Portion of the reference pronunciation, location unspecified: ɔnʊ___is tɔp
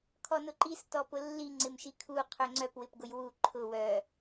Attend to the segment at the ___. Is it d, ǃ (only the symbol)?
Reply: ǃ